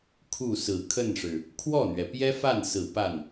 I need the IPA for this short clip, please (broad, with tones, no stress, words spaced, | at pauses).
kʰu˥˩sɹ̩˨˩ kʰə˥˩nʂɻ̩˩ | kʰwɔ˥˩n̪ɥɛ˩pjɛ˥ fa˥˩nsɹ̩˨˩ pa˥˩n